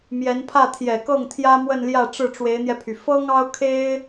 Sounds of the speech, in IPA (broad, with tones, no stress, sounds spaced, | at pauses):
m j ɛ˧˥ n pʰ ä˥˩ t̪ʰ j ɛ˨˩ k ɤ˥˩ ŋ t̪ʰ j ä˥ m w ə˥˧ n l j ä˥˧ ʈ͡ʂ ɻ̩˥˩ ʈ͡ʂ w e˧˥ ɪ̯ n̪ j ɛ˧ pʰ y˩ f ɤ˥ ŋ ɑ˥ ʊ̯ kʰ e˥ ɪ̯